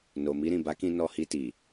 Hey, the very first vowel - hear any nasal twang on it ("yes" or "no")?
no